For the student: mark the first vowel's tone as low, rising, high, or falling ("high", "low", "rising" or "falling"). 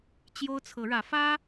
high